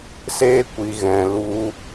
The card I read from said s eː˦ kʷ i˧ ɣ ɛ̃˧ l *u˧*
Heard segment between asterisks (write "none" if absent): u˧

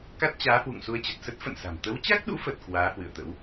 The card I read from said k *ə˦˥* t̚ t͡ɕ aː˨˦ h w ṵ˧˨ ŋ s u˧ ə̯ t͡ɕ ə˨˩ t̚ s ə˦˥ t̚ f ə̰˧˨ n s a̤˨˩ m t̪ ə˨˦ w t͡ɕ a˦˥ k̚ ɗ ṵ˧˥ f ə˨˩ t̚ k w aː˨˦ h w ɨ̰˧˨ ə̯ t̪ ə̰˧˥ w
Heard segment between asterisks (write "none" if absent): a˦˥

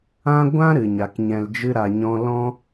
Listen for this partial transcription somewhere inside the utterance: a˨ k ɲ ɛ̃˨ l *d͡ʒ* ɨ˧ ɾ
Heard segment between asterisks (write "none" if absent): d͡ʒ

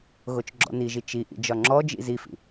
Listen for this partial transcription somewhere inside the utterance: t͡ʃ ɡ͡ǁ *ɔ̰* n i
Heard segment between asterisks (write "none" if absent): ɔ̰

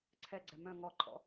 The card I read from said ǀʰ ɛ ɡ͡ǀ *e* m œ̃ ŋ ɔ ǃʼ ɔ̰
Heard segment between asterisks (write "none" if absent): ɛ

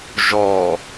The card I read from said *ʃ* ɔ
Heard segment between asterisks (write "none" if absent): ʒ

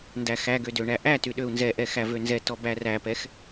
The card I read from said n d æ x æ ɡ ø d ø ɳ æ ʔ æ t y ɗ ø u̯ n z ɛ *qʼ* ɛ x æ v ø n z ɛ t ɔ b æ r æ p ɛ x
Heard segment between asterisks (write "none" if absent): ʔ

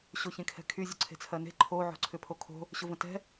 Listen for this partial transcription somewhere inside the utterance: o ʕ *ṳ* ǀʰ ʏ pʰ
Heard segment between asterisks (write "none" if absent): o̤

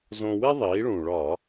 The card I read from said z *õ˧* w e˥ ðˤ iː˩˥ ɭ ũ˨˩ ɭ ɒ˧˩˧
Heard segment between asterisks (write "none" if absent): õ˧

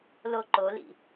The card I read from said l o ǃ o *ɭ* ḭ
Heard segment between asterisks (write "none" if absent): l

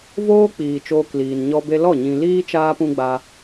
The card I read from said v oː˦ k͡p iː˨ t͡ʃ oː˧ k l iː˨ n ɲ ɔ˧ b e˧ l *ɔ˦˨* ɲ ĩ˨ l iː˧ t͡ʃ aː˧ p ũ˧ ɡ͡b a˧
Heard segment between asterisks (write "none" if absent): ɔ˦˨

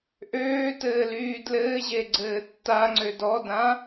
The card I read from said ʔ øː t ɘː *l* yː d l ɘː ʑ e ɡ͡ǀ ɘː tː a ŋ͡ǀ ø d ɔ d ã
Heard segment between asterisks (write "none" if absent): l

